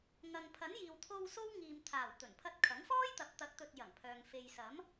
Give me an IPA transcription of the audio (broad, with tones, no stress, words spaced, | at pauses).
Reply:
ŋɐ˨ŋpʰɐ˨˥njiː˨wt̪ʰo˧w so˥wŋiː˨mt̪ʰaː˨˩w t̪ɵ˨˩npʰɐ˧t̚kʰɐ˨˥ŋfɔː˥j t̪ɐ˨˥p̚t̪ɐ˨˥k̚t̪ɵ˨t̚ jɐ˨˩ŋ pʰœː˨ŋ fe˨jsɐ˨˥m